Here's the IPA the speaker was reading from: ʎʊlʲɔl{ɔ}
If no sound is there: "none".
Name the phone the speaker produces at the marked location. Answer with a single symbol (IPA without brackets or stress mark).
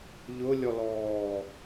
ɔː